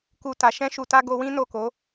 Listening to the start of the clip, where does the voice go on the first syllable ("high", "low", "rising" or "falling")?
low